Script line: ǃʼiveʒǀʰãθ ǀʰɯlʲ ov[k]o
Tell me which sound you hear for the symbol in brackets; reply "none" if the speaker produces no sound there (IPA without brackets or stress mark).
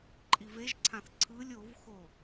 x